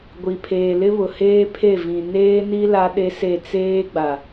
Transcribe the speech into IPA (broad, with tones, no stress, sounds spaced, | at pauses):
ɡʷ i˨ pʰ eː˨ l ɪ˦ β ʊ˨ h eː˦ pʰ e˦˨ v ĩ˨ n eː˦ n i˦ l a˦ ɗ e˦ s e˦˨ t͡s eː˦ ɡ͡b a˨